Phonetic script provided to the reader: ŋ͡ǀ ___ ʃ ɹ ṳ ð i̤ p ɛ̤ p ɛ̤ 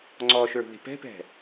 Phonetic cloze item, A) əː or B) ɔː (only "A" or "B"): B